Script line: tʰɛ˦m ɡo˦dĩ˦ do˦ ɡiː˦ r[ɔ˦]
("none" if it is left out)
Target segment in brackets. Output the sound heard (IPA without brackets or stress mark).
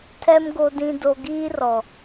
ɔ˨